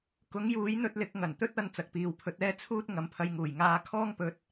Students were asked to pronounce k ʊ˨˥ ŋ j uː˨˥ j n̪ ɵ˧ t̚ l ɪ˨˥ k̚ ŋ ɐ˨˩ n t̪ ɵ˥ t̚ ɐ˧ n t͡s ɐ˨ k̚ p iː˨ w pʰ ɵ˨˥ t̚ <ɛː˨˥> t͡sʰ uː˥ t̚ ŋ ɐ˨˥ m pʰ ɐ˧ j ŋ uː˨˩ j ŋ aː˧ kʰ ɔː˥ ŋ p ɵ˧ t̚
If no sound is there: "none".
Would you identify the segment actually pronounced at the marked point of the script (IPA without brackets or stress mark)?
ɛː˥